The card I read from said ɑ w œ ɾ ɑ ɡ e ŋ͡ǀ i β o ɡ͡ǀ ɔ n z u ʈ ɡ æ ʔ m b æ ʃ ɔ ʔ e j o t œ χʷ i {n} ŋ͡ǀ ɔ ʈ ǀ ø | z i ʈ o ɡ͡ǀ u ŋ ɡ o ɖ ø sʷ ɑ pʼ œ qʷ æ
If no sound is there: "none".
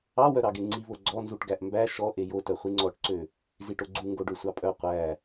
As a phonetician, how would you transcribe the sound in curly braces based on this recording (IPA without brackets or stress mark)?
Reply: none